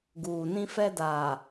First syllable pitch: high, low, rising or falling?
low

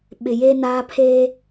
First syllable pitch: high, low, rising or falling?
low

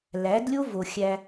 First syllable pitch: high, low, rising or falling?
rising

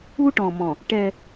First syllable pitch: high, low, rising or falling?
high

